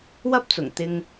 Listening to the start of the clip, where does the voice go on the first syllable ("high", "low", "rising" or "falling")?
high